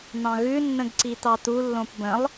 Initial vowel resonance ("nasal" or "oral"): nasal